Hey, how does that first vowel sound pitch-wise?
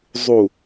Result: low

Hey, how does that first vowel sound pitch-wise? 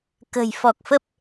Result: low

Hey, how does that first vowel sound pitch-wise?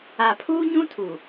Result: low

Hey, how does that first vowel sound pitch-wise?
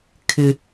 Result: high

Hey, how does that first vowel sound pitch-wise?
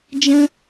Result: high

